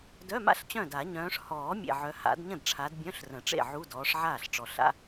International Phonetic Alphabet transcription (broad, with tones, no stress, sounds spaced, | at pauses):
d œ˧˥˧ m a̰˥˩ ɬ t͡ɕ œ̃˥˩ d a˨˩˦ ɲ œ̃ː˨˦ ʂ h ɔː˨˩˦ mʲ ḛ˨˩ ʕ œ˨˦ h a̰˨˩˦ d ɲ ə̃˥˩ d ʈ͡ʂʰ a˨˦ d bʲ œ̃˧˥˧ ɬ r ə̃˨˩˦ ʈ͡ʂ ḛ˥˩ ʕ u˧˥˧ d ɔː˨˦ ʂ ʕ aː˥˩ ɬ ʈ͡ʂ ɔ˨˩ ɬ a̰˧˥˧